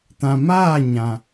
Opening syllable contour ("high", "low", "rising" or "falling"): low